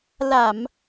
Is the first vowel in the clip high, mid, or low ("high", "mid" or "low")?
low